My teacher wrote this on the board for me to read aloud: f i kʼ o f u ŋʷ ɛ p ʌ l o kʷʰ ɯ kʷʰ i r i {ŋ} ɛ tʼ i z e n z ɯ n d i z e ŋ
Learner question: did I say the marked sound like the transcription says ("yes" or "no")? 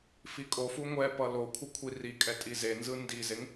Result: no